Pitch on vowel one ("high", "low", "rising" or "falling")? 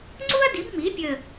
high